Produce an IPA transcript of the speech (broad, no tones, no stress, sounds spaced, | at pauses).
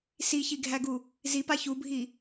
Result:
s i ç i ɡʱ æ ɡ u | z i p a ç u bʱ i